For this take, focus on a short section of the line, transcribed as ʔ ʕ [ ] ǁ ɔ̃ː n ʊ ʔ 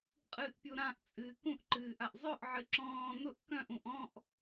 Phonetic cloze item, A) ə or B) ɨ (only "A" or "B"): B